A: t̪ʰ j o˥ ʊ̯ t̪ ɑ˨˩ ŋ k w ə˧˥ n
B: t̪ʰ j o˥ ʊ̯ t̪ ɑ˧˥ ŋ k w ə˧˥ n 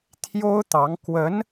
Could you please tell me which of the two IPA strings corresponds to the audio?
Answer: B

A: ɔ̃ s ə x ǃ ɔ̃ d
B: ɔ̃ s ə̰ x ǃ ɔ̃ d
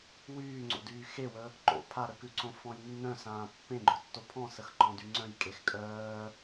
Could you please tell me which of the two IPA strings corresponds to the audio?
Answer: A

